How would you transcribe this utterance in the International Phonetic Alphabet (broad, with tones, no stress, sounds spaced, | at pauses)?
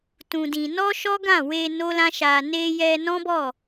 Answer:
t ũ˧ d ĩ˧ n ɔ˦ ʃ ɔ˦ ɡ ã˦˨ w e˧ n o˦ l ã˦ ʃ a˧ n e˧ j ɛ˧ n ɔ̃˦ b ɔ˦˨